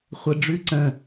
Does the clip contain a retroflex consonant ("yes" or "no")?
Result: yes